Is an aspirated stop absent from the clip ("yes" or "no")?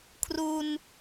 no